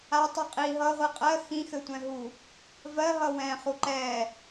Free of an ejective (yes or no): no